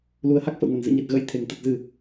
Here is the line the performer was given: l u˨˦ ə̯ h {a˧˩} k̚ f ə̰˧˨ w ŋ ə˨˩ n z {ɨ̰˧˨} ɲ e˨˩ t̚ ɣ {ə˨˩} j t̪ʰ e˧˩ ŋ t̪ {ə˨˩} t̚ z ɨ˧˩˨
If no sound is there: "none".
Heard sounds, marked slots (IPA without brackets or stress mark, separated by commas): a˦˥, ɨ̰˧˨, ə̰˧˥, ə˨˩